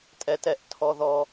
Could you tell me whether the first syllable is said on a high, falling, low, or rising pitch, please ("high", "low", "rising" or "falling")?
high